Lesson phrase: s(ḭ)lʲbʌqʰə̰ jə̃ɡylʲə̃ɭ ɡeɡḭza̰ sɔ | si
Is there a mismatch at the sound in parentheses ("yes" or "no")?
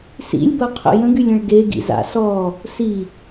no